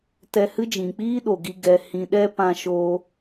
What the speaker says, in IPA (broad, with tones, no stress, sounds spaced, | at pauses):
t ɛ˧ h ɨ˦ d͡ʒ ĩ˨ k͡p iː˦ ɗ o˨ ɡ i˧ ɡ ɛ˨ h ĩ˨ ɗ ɛ˧ p ã˧ ʃ oː˧